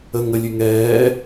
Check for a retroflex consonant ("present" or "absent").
absent